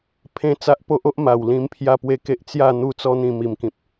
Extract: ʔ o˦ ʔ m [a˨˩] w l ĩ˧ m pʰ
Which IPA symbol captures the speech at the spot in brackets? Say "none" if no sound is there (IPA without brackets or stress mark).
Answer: a˨˩